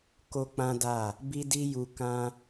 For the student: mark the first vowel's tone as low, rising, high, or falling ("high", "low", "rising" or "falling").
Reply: high